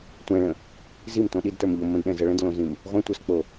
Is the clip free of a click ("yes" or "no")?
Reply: yes